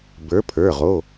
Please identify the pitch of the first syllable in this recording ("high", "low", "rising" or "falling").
rising